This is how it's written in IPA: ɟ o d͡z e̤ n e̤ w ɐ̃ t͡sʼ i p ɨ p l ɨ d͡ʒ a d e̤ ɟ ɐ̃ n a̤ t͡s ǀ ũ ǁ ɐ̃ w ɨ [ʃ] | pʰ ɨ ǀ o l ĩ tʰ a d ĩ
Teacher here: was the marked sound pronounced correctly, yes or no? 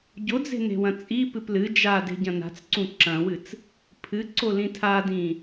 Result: no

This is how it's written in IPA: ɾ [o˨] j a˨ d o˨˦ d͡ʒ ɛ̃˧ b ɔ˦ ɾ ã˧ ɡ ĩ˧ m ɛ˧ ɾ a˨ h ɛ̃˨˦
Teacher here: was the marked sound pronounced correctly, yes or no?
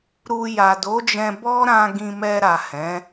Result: no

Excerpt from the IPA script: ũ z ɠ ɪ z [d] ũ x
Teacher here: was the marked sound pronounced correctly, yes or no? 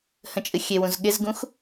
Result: no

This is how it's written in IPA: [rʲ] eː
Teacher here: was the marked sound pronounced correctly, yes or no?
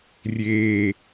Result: yes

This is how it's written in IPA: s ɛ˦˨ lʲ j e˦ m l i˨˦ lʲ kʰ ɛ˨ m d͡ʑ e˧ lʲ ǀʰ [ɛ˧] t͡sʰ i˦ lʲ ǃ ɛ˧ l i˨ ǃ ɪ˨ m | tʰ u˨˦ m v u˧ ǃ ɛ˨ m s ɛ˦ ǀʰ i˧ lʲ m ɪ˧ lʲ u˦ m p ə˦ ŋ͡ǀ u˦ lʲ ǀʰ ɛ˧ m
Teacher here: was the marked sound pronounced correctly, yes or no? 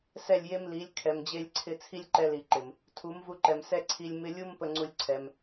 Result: no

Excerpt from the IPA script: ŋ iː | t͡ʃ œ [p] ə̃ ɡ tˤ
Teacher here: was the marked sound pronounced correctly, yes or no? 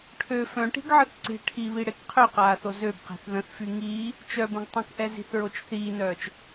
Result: no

